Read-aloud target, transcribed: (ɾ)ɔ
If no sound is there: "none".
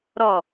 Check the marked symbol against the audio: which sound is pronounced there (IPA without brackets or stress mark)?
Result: ɾ